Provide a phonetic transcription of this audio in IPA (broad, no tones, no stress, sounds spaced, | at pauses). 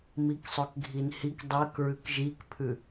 m i k sˤ ø k ɡʱ i n h i k dˤ ø k ɹ ʉ k ʒ i k pʰ ʉ